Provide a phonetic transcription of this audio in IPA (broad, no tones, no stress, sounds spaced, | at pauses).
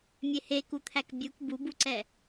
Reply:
mʲ e h e k u t̪ʰ æ k bʲ u k b u b u ǀ ɛ